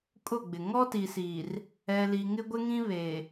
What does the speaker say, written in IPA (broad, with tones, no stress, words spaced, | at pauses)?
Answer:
kʼʊ˦˨ɡ͡bɪ˨ ŋɔ˦ti˨siː˨r | ɛ˨li˨ ŋɪ˦ɡʷɪ˦ŋĩ˦βe˨